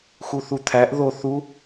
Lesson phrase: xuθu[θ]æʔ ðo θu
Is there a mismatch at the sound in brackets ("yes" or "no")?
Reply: yes